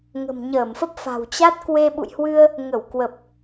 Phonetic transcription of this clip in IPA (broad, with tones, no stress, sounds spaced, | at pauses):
ŋ ə̤˨˩ m ɲ əː˧˩ m f ə˦˥ p̚ f a̤˨˩ w t͡ɕ a˦˥ t̚ k w e˧ ɓ ṵ˧˨ j h w ɨ˧ ə̯ | ŋ ə˧˩ w k w ə˨˩ p̚